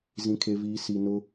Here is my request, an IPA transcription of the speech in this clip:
zĩ˨kʰe˨viː˨ si˨nʊ˦

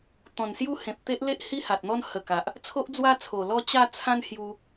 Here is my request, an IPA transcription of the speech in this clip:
t̪ɔ̃˨˩nsju˦hẽ˨p̚t̪e˦ʔ le˦ʔhi˦ha˨t̚n̪ɔ˦n hə˨˩ ka˨ʔ | t͡sʰo˦ʔd͡zwa˦t͡sʰo˨˩ lɔ˥˧t͡ɕa˥˧ t͡sʰã˦nhju˧

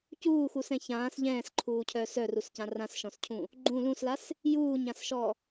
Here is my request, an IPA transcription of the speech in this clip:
cuːxusɛ̃ çãːs ʎɛ̃ːsǃʰuːcʰœːs œruscã rãsʃɔ̃scʰũ | ɡ͡ǃũ lũslas | juːɲãsʃɔ

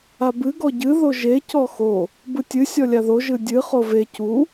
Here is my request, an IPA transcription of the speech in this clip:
abɨ ɡɔɟɨ ðoʒe cɔxo | bɯtʲɨ sʲɔlʲaðo ʒɯdʲɨ χove cu

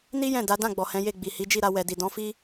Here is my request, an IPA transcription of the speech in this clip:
ni˦ jɛ̃˦˨da˨˦dã˦˨ɡ͡bɔ˨ hɛ̃˨˦je˦˨ɡ͡bi˨ hi˨˦d͡ʒi˦˨ɾa˧ wɛ˨di˨ dɔ̃˨˦fi˦

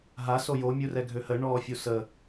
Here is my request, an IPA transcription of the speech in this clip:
ɦa sojo mʲurɛɡʱøhə ɳɔːfʲusə

